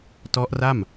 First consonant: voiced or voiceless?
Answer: voiceless